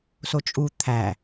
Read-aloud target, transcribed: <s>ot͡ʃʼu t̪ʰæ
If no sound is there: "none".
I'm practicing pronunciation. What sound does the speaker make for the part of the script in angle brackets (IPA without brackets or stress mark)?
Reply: s